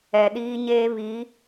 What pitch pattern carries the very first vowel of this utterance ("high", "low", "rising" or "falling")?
low